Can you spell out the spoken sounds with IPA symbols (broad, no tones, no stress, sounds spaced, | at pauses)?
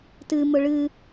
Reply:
t ɨ m ʊ ɭ ɨ